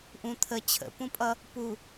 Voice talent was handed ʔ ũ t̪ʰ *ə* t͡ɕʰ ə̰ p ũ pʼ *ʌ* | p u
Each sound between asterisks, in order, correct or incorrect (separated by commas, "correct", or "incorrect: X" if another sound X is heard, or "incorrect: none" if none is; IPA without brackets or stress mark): correct, correct